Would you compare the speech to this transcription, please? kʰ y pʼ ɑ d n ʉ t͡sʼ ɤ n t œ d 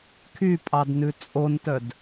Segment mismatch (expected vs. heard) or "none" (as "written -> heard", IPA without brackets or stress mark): ɤ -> o